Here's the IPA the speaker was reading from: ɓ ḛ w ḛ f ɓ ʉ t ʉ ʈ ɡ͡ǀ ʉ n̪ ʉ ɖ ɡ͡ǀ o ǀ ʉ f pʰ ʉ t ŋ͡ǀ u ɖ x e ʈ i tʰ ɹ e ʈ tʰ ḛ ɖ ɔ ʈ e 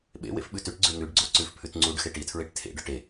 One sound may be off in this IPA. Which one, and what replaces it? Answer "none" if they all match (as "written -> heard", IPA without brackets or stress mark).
none